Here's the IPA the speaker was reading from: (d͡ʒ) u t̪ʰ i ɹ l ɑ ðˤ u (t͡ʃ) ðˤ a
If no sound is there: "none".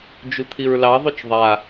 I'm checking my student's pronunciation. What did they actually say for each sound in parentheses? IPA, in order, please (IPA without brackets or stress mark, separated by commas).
d͡ʒ, t͡ʃ